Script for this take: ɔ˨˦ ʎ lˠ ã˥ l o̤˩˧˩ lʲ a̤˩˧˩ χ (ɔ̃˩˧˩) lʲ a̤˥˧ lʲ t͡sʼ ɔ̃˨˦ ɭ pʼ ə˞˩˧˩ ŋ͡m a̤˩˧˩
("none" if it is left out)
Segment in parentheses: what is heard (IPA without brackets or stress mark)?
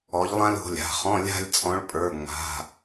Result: ɔ̃˧˥˧